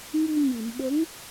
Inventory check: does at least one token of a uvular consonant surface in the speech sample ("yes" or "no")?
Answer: no